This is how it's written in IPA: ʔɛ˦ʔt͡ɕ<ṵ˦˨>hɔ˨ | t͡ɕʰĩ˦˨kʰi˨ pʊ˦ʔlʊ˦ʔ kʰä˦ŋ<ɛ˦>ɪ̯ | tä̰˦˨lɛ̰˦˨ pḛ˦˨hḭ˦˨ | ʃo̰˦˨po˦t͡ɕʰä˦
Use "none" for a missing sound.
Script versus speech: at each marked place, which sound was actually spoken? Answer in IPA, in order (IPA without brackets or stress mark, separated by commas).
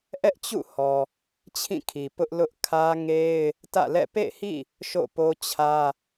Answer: ṵ˦˨, e˦